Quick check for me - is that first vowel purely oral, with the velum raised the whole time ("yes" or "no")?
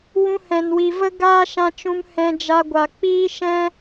no